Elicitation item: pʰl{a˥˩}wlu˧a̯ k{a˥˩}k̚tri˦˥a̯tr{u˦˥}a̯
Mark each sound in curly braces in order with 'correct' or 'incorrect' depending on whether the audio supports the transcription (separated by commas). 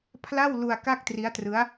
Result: correct, correct, incorrect